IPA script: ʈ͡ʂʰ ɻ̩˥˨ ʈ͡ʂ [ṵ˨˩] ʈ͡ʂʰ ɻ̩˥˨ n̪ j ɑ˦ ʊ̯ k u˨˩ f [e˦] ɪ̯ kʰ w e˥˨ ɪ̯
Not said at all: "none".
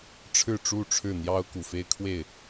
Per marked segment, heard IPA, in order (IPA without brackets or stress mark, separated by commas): u˥˨, e˦